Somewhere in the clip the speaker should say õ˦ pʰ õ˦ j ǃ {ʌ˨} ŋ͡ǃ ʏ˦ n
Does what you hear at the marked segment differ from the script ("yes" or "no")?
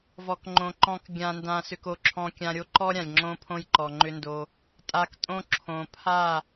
yes